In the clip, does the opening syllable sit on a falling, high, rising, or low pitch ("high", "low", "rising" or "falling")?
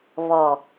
low